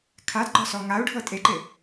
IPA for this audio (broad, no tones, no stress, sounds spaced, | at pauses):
kʰ a d ɡ͡ǃ ɒ s ɔ ŋ a u̯ ɖʱ ɤ tʼ e ǃ ɪ